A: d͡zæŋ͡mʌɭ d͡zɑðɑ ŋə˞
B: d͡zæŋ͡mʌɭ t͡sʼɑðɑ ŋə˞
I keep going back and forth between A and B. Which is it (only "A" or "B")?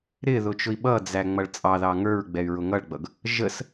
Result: B